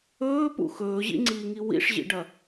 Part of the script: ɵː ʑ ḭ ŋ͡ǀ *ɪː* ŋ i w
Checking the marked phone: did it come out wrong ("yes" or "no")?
yes